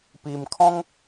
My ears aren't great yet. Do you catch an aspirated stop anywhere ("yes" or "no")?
yes